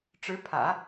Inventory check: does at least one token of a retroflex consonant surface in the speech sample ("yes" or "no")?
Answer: yes